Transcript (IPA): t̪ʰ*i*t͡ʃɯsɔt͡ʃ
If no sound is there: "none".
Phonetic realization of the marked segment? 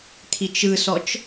i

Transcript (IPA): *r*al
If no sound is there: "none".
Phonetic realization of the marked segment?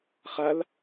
χ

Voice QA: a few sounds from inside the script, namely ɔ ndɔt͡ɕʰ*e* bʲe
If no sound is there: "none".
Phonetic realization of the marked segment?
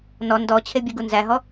e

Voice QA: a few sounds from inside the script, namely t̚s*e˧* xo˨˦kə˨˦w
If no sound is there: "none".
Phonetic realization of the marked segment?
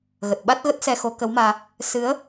ɛ˧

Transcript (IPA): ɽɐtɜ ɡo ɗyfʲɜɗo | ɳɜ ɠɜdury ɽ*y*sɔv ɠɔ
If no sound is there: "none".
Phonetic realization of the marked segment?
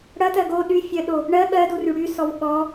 y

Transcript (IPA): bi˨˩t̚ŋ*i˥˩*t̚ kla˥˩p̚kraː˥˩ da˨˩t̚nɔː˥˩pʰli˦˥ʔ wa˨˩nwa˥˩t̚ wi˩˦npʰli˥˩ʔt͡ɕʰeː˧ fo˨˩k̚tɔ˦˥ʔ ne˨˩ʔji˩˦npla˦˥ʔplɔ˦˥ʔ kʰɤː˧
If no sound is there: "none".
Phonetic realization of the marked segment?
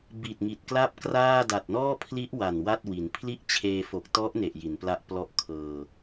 i˨˩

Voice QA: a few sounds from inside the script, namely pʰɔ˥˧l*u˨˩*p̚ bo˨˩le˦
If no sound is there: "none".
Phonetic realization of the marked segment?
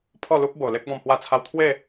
u˦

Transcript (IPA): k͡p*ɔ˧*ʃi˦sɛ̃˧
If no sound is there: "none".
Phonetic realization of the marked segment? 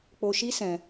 o˧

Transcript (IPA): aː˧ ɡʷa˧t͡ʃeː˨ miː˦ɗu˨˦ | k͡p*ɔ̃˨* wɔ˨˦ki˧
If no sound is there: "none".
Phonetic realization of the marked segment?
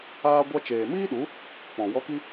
ɔ̃˨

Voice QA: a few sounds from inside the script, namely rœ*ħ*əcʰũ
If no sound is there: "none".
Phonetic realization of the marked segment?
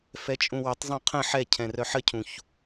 ħ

